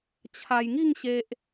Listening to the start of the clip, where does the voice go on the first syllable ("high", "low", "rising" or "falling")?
low